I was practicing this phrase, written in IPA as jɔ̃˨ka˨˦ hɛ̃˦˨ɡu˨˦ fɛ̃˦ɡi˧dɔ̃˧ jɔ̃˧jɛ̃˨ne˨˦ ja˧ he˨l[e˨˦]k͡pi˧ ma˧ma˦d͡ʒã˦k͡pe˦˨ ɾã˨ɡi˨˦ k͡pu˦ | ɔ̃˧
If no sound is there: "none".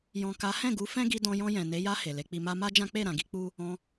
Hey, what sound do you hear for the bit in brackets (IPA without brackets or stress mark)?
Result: e˨˦